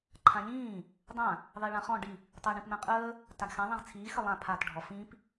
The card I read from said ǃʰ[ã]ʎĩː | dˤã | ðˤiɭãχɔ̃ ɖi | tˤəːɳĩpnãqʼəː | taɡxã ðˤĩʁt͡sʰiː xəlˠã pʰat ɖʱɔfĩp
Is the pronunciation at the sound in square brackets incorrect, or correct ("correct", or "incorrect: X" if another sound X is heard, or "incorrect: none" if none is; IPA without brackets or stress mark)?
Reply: correct